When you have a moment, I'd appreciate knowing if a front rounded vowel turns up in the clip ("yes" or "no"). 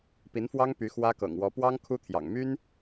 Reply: yes